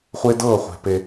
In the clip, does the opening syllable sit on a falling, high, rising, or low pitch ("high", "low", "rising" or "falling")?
high